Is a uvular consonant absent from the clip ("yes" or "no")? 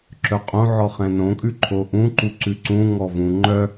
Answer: no